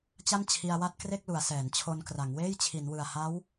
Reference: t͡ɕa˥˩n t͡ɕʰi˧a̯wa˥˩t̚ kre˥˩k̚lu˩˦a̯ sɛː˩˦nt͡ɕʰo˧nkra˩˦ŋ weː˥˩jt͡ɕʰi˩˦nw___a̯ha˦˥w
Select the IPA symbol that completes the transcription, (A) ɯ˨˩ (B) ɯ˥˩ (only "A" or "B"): A